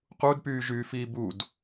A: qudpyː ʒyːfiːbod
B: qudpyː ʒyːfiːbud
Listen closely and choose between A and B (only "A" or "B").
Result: B